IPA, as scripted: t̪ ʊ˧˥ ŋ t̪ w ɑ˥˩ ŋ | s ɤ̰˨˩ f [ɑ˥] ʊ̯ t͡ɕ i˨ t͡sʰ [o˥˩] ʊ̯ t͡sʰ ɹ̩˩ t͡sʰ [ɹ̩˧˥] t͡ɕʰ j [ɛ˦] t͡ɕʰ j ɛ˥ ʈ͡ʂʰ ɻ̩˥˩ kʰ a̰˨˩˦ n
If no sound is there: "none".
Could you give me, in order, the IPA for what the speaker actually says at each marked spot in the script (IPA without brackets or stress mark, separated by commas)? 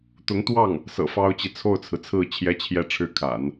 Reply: ɑ˥, o˥˩, ɹ̩˥˩, ɛ˥